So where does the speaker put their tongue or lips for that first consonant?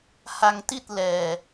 throat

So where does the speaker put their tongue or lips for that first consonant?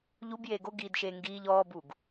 palate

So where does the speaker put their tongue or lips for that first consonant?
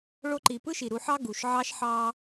retroflex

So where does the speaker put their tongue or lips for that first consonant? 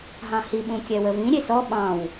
throat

